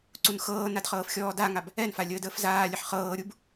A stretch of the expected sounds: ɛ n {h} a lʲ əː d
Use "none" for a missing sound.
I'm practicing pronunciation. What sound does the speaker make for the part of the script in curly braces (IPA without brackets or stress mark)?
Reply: f